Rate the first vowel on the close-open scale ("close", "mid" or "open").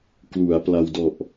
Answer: close